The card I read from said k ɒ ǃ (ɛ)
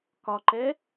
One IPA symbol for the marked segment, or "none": ɛ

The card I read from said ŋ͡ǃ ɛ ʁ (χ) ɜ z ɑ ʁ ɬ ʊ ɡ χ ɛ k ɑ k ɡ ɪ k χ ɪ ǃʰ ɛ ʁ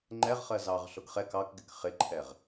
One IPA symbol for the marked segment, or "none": χ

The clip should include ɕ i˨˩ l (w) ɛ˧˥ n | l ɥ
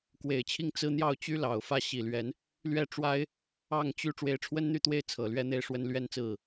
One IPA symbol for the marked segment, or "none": ɥ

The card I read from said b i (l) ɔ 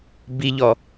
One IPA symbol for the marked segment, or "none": ʎ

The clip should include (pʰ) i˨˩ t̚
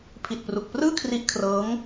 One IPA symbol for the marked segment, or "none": pʰ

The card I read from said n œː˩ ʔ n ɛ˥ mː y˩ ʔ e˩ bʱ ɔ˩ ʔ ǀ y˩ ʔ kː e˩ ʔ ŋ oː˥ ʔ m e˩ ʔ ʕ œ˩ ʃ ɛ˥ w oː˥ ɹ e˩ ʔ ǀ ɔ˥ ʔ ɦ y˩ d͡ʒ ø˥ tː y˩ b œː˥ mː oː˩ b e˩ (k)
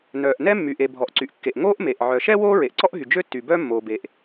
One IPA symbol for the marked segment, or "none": ʔ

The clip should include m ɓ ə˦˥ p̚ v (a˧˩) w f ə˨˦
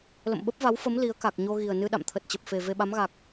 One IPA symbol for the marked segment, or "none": a˨˦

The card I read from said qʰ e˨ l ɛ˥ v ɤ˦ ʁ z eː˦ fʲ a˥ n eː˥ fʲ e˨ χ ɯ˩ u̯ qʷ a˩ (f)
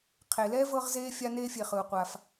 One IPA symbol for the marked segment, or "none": f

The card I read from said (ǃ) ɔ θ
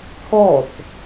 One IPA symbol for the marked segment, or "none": t̪ʰ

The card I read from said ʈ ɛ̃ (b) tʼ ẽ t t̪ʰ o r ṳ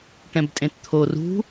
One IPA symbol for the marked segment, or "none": b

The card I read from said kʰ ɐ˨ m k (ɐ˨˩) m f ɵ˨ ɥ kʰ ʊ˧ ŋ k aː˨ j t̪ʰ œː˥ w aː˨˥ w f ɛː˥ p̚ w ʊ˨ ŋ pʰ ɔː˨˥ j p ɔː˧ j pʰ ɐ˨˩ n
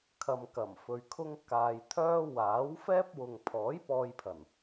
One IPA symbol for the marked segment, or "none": ɐ˨˩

